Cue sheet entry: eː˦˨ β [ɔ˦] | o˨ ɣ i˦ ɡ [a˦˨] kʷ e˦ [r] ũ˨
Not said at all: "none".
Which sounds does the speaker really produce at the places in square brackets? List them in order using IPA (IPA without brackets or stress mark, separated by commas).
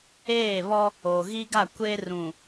ɔ˦, a˦˨, r